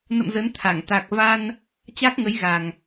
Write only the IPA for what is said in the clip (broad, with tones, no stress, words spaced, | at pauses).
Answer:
nə̰˧˨m zə˨˦nt̪ʰa˧˩ŋ t̪a˨˩k̚va˧n | t͡ɕa˦˥k̚ŋə˨˦jɣa˨˩ŋ